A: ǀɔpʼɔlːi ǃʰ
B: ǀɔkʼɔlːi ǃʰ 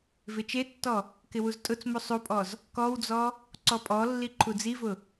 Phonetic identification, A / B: A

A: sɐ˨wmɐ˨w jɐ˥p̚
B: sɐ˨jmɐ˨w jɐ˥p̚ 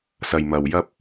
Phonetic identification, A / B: B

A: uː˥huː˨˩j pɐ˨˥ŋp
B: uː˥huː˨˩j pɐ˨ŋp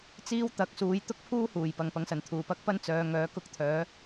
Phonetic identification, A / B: B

